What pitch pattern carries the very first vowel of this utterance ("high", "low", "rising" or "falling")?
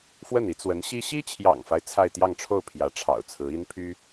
falling